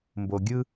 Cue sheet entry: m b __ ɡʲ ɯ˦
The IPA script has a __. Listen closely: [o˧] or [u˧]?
o˧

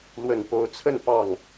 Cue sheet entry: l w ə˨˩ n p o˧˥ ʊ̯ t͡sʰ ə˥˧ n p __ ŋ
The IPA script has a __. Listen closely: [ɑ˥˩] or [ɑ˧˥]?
ɑ˥˩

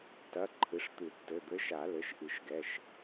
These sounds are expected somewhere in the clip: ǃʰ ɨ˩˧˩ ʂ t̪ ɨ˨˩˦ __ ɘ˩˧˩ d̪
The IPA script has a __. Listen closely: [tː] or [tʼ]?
tː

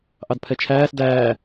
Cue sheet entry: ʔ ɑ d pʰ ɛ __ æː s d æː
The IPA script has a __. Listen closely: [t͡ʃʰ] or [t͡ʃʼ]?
t͡ʃʰ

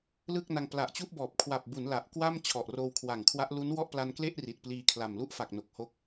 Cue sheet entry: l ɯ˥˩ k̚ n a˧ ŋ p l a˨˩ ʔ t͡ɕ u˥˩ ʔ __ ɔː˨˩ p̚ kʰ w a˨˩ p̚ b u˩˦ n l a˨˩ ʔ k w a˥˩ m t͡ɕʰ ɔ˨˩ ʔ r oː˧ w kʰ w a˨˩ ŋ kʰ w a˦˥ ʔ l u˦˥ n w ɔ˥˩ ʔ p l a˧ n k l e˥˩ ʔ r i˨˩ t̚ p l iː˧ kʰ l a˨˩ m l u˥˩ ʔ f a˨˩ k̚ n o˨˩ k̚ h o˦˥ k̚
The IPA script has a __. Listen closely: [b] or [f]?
b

